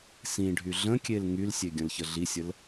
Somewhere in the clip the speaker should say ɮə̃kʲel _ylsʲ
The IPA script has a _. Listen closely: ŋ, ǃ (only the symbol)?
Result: ŋ